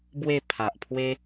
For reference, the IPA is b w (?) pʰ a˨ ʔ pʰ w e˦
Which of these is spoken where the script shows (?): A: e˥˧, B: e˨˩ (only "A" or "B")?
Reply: A